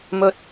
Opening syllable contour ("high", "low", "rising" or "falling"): low